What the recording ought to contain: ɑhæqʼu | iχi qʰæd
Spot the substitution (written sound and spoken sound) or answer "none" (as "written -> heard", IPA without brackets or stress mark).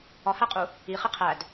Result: ɑ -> ɒ